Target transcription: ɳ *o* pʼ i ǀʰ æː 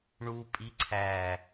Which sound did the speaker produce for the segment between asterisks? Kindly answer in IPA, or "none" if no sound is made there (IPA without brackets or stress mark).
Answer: u